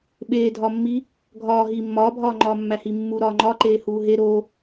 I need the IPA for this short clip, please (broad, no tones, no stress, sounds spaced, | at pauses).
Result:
ɓ eː dʱ ɒ mː i | ɡʱ ɒː ɦ iː mː ɒː bʱ ɒː ŋ͡ǃ ɒː mː æ h i mː u ɾ ɒː ŋ͡ǃ ɒ ǃ eː h uː ɦ e ɾ o